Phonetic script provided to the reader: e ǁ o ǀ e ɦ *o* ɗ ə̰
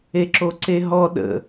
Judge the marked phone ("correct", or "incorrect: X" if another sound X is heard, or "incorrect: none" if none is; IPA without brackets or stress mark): incorrect: ɔ